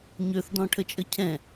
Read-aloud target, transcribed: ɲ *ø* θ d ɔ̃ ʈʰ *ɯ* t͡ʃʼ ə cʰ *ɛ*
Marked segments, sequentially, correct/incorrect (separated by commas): correct, incorrect, incorrect